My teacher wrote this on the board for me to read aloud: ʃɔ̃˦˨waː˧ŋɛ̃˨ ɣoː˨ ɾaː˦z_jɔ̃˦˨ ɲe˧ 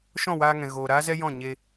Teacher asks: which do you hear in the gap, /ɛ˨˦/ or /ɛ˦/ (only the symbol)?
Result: ɛ˦